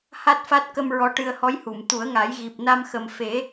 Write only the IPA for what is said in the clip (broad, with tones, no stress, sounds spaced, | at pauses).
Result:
h a˦˥ t̚ f a˦˥ t̚ k ə˧ m ɹ ɔ˧ ʈ ɨ˧ ə̯ h ɔ˧˥ j h u˨˩˨ m t̪ u˨˩˦ ə̯ ŋ a˨˩˦ j ɣ i˨˩ p̚ n a˧ m x ə˨˩ m f e˨˩˦